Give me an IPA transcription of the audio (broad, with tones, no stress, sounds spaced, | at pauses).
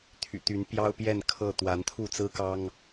t̪ʰ y̰˨˩ t̪ y˨˦ n p j ɑ˦ ʊ̯ p j ɛ˥˨ n kʰ ɤ˥˨ t̪ w a˨˦ n t̪ʰ u˥˨ t͡s ɹ̩˦ k ɑ˦ ŋ